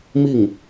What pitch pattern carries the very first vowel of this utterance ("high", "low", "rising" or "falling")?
falling